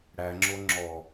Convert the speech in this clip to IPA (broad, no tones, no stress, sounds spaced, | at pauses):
ɽ æ ŋ͡ǁ o ŋ͡ǁ ɔ